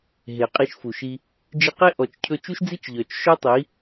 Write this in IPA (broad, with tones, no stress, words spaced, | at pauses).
ɦe˨qʼi˧ʃfu˨ʃi˧ | d͡ʒi˧qe˦ ʔɔ˨t͡ʃcʰɵ˧ t͡ʃu˦ʃd͡zi˦t͡ʃ ʎœ˨t͡ʃ ʃœ˦tˤi˨˦